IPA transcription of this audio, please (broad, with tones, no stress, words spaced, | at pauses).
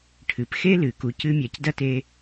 ʈʰɨ˩p xe˥lɨ˩ku˨ cɨ˦mʲa˨cdɐ˥te˦